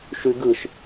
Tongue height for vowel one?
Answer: high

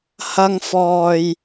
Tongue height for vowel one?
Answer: low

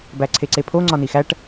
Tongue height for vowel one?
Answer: low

